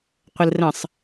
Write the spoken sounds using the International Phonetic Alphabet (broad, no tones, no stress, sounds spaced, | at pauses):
qʷ ə l r ə̃ sˤ